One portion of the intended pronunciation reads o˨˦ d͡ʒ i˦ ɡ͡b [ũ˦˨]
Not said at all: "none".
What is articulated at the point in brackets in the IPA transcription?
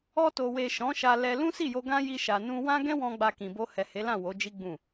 ũ˦˨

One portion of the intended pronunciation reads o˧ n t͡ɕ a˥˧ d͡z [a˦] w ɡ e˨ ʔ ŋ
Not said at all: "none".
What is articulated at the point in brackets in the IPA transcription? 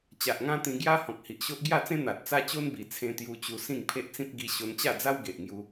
a˦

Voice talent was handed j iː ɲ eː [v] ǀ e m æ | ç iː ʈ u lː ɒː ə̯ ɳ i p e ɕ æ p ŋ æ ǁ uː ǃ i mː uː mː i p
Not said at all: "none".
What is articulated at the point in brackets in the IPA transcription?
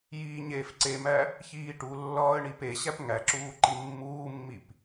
f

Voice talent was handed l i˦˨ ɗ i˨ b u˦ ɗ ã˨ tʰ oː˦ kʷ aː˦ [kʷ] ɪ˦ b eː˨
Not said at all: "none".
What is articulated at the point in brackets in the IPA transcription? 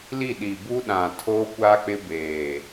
k͡p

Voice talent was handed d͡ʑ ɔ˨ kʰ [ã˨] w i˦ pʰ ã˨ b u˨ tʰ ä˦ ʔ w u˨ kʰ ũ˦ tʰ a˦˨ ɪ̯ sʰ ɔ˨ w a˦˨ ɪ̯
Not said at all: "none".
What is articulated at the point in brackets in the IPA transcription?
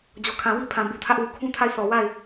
ã˨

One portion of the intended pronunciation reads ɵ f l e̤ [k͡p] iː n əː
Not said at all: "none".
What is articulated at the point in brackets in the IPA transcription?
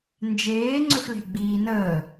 ɡ͡b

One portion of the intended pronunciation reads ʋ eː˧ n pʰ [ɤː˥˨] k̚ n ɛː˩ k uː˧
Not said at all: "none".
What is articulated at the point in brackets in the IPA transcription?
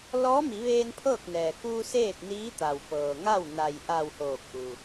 ɤː˥˨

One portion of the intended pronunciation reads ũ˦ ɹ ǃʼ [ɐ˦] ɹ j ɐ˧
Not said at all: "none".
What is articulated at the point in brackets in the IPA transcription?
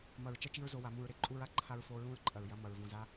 ɐ˨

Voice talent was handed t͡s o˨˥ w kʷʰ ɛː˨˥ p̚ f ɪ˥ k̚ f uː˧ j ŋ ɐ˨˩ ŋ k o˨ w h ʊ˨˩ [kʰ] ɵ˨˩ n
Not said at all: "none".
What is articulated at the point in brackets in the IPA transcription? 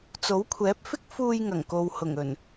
ŋ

